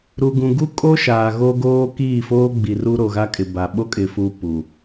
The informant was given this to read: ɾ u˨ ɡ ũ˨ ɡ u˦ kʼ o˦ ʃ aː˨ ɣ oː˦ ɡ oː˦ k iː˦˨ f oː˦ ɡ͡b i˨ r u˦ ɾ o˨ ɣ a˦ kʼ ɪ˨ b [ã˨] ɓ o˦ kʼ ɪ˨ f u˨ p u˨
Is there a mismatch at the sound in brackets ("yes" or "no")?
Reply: yes